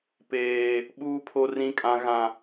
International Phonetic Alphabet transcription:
peː˦ | ɓuː˦pʰo˦ rĩ˦kʼã˦ɣã˦

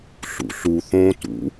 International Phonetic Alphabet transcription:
ɬṵɬu θõtṵ

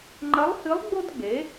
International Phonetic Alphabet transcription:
ŋ͡ǃɐ˧˥lˠhɨ˧˥lˠ ɡ͡bo˥dɡ͡be˩˥

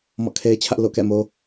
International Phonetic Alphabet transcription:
mɔ̰˦˨kʰe˦ɪ̯t͡ɕʰä˦ʔ lo̰˦˨kɛ̰˦˨mo˦

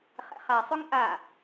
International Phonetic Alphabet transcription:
χɛ̰χasˤɵŋ ʔa

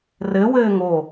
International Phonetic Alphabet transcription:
rɘ wɘːŋo

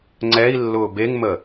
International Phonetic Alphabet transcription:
ŋ͡ǀɛi̯lːʊː beŋmə

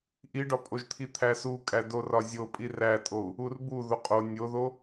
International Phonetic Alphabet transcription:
ʔiɖɒpʼoʒt̪ʰi t̪ʰæsukʼæ dorɒzʲo pʼirætʼou̯ | urbu ðoqʼo nʲoðo

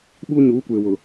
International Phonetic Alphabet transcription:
ɓuː˦ɲuː˨˦kʷeː˨wʊ˨

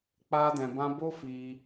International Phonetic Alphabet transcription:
k͡paː˦dɛ̃˧bã˦ bo˦fiː˧

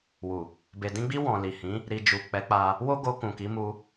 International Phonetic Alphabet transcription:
wu˨ | be˨dĩ˧ɡ͡bi˧ wɔ̃˨li˨hĩ˨˦ | ɾi˧ d͡ʒu˨k͡pɛ˨˦ k͡pa˧ | wo˦ɡo˧ kũ˨ki˨˦mu˧

